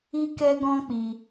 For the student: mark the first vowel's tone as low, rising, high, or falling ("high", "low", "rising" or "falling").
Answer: high